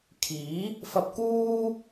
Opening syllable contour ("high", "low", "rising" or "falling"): rising